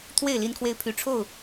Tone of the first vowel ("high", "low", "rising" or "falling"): falling